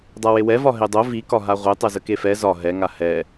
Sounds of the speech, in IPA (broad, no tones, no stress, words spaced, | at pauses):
dˤawewɛvɒ ɦedˤo vikɒɦa ʁʷe tˤɛzəkefɛ zɒ ɦɛŋa hɛ